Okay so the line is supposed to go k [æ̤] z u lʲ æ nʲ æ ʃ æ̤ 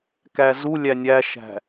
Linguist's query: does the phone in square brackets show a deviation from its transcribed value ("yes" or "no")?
yes